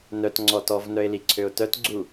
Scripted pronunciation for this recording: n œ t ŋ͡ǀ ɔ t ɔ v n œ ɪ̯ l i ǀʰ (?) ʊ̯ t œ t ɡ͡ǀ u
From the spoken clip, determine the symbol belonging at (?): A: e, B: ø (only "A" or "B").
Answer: B